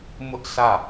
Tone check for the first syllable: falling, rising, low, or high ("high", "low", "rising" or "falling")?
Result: high